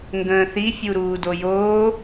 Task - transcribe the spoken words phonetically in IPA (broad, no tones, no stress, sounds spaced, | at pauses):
ŋ ɡ ə̃ː θ i fʲ u ɾ uː d o j oː